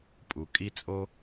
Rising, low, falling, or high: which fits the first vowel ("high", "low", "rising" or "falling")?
low